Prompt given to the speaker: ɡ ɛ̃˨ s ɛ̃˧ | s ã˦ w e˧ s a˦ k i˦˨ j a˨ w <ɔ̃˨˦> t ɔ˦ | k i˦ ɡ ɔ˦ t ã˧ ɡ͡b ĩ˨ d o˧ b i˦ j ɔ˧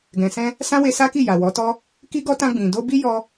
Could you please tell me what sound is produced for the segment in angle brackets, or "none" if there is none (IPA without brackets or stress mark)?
ɔ˨˦